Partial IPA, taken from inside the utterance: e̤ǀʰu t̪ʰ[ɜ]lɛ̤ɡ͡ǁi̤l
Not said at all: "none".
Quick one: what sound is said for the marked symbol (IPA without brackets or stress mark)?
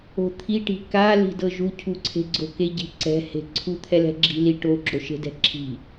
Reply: ɛ